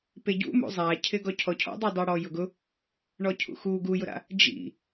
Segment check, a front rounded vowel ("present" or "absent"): absent